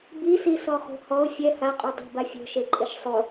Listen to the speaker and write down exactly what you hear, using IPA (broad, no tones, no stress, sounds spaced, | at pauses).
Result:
b i s i s ɔ χ o̤ h ɔ ʊ̯ fʲ ɛ h a qʼ u dˤ o̤ b a fʲ o̤ ʃ e ǃʼ ɪ ʃ sˤ o